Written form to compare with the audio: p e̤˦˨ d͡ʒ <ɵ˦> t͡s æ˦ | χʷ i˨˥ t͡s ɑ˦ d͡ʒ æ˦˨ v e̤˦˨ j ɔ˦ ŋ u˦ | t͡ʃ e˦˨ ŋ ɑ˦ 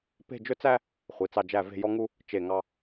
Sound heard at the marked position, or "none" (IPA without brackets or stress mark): ɵ˦